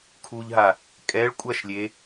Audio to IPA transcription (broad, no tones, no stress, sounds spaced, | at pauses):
kʰ u ʎ ɦ a | kʼ ɛ ɭ kʷʼ ɐ ʃ lʲ e